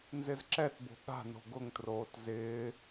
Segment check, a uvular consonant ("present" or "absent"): absent